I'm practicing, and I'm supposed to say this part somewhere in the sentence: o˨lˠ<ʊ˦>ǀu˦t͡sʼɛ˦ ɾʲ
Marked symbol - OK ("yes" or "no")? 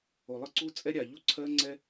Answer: no